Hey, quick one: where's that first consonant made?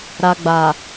tongue tip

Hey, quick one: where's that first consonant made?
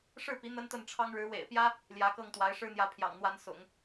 retroflex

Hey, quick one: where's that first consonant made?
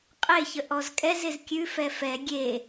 uvula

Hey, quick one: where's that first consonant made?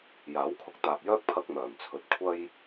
palate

